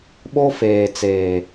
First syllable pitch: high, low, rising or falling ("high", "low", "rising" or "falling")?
high